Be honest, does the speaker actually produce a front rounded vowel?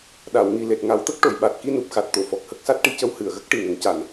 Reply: no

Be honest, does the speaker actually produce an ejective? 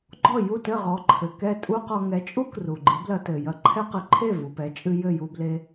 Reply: yes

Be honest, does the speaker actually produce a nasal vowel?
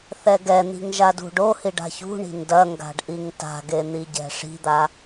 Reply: no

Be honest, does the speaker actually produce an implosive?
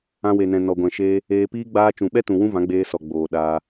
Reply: yes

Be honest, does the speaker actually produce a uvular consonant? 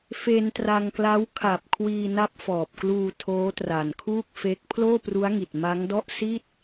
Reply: no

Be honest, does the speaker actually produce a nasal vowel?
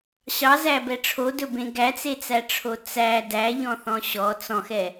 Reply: yes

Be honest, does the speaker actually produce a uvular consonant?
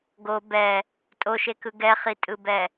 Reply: yes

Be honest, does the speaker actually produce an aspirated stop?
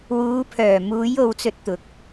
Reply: yes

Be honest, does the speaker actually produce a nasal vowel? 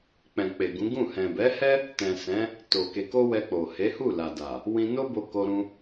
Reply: yes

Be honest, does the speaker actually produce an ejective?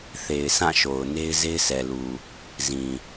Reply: no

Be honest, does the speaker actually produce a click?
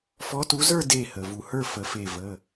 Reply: no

